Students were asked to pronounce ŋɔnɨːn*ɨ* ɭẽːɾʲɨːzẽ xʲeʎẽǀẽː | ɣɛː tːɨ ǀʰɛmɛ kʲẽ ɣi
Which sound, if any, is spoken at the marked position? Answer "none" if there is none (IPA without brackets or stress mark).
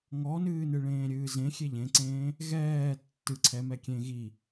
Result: ɨ